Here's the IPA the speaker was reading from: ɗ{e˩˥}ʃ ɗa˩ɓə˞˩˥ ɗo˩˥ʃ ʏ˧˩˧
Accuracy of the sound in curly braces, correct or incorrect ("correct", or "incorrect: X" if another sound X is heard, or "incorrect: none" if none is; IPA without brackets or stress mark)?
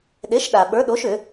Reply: correct